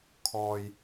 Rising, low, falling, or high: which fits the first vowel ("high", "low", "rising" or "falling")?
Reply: low